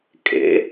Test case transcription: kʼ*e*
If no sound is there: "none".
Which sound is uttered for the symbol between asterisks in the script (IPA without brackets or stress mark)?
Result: ḛ